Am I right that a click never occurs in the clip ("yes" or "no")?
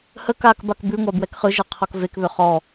yes